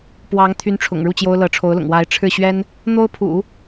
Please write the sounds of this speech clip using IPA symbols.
p w ɑ˧˥ ŋ t̪ʰ y˧˥ n ʈ͡ʂʰ ʊ̰˨˩ ŋ ɻ u˥˩ t͡ɕ j o˥ ʊ̯ l ɤ˧˥ ʈ͡ʂʰ o˧˥ ʊ̯ l ʊ̰˨˩ ŋ w a˧˥ ɪ̯ ʈ͡ʂʰ ɻ̩˥˩ ɕ ɥ ɛ˥ n | n̪ o˥ ʊ̯ pʰ ṵ˨˩˦

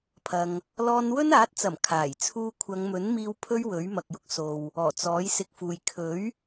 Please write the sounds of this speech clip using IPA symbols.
pʰ ɐ˧ ŋ | l ɔː˧ n w ɵ˥ n aː˨˥ t̚ t͡s ɐ˨˩ m kʰ aː˨˩ j t͡sʰ uː˥ kʷʰ ɐ˨˧ ŋ m ɵ˨˥ n m iː˧ w pʰ ɵ˥ ɥ w ɵ˨˥ ɥ m ɐ˨ k̚ j ʊ˥ k̚ s o˨ w | ɔː˨˩ t͡s ɔː˨˥ j s ɪ˧ k̚ f uː˨ j kʰ ɵ˨˥ ɥ

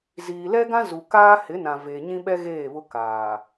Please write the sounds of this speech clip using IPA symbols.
z iː˨ l ɛ˦ ɡ ã˦ z u˨ k aː˦ h ɪ˨˦ n ã˨ v e˨ ɲ ĩ˦ ɓ ɛ˦ ɣ eː˦˨ β ʊ˦ k aː˨

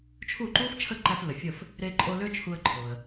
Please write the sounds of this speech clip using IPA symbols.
t͡ʃʰ u˥˩ ǃ u˥ f t͡ʃʰ ə˥˩ ǃ æ˧ f l ə˩ fʲ ə˥˩ f | ɾ e˧ ǃʼ o˧ l ø˥ t͡ʃʰ u˧ ə̯ ǃʰ o˩ ə̯

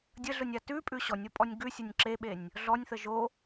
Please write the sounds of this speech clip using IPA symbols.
dʲ ə ɮ ʊ nʲ a t ʉ pʼ ʉ ɕ ɔ nʲ o pʼ ɔ nʲ ɡ ʉ sʲ ʊ nʲ ǁ e ɓ e nʲ | ɮ ɔ nʲ θ ə ʒ o

